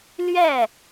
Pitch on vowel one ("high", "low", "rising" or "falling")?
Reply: falling